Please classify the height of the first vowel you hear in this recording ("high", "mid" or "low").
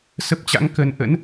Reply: mid